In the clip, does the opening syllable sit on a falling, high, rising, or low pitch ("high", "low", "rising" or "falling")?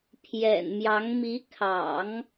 low